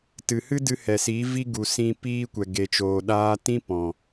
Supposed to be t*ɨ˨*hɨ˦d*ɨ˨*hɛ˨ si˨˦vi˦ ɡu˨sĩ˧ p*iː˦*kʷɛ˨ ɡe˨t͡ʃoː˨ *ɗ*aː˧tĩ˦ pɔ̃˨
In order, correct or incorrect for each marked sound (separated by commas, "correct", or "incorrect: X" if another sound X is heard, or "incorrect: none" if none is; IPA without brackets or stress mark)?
correct, incorrect: ɨ˧, correct, correct